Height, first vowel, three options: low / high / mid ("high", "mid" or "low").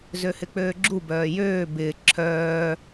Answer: mid